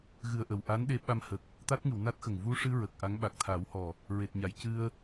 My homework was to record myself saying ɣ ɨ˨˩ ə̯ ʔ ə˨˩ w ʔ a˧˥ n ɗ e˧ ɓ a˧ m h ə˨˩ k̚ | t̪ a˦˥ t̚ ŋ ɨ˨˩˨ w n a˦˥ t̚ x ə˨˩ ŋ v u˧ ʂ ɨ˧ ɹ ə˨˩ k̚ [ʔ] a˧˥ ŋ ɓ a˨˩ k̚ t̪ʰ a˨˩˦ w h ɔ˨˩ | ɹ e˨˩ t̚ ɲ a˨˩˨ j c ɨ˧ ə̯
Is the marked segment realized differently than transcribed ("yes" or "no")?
no